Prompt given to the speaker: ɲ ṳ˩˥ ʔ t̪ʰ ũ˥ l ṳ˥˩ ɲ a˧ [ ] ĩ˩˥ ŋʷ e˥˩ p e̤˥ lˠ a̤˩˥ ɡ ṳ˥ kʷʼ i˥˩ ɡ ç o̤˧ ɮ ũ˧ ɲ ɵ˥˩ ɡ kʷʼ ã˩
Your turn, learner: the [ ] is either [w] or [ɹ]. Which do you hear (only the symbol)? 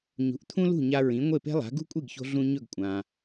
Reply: ɹ